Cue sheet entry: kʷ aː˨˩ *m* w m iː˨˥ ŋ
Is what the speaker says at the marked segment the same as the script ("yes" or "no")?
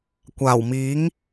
no